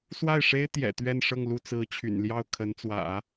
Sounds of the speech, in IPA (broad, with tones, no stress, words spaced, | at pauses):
swa˥˩ɪ̯ʂe˥ɪ̯ t̪jɛ̰˨˩t̪ɥɛ˥˧nʂɤ˥˧ŋ lu˥˩ t͡sɹ̩˧˥t͡ɕʰy̰˨˩nljɑ˥˩ʊ̯ kʰə˧˥n t͡swä̰˨˩˦